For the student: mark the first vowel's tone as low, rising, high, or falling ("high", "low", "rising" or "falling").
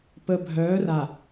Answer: low